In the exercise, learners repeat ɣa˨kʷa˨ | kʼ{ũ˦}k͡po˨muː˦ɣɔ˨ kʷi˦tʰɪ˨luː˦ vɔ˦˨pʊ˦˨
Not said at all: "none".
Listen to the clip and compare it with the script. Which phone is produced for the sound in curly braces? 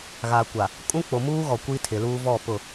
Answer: ũ˦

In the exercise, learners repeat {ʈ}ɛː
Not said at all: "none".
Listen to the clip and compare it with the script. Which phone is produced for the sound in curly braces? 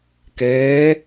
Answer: k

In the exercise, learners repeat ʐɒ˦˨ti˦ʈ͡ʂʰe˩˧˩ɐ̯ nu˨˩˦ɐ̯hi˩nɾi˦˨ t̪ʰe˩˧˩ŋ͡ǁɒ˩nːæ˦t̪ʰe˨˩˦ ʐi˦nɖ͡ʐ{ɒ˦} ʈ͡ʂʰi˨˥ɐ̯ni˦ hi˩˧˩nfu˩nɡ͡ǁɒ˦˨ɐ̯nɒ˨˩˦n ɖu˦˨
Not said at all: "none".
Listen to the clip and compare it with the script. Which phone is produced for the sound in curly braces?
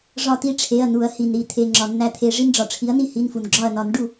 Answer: ɒ˩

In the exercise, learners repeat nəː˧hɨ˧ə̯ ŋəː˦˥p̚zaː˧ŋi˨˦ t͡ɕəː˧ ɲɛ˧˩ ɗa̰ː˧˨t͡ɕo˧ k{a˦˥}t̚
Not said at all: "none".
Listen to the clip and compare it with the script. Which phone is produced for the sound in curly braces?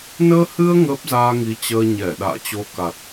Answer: a˨˩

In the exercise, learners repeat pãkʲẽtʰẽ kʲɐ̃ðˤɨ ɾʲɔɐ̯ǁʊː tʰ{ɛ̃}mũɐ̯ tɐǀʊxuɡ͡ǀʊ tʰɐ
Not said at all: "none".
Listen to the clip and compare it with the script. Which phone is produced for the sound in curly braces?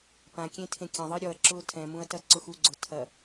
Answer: ɛ̃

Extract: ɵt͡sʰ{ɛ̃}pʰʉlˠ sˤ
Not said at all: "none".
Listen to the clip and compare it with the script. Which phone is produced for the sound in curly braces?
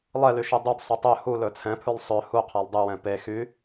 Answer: ɛ̃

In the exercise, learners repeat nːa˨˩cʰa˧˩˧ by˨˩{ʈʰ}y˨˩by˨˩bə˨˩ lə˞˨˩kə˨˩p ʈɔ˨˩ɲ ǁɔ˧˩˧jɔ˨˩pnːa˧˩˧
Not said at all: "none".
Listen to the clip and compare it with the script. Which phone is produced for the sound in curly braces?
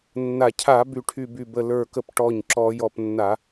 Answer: ʈʰ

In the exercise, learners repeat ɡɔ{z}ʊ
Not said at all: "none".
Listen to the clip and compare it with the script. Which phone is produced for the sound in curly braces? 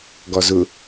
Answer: z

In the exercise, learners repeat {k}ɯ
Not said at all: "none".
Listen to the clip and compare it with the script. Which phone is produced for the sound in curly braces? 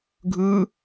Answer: ɡʱ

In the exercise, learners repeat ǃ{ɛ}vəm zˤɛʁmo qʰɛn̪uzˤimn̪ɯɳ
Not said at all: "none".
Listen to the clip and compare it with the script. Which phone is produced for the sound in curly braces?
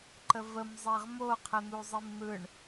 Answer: ə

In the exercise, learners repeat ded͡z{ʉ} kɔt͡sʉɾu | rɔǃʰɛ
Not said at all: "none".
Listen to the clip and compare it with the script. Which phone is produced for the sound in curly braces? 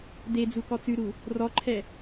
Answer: u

